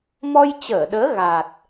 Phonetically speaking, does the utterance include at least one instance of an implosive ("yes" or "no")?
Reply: yes